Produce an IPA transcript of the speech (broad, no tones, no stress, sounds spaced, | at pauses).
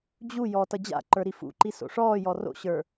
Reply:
d͡ʑ u j ɔ t ʌ d͡ʑ a̰ ǃ ə˞ ɾ i f ṵ ǃ i s o̰ ʂ ɔː j ɔ r o̰ ɕ ə˞